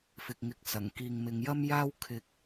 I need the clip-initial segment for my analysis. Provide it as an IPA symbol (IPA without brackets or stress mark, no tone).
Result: f